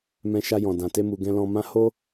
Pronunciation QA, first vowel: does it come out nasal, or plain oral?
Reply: nasal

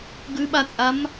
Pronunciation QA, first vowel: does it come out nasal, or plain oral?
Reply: oral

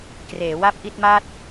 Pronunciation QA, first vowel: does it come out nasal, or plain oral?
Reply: oral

